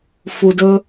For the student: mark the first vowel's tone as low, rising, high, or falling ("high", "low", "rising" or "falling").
low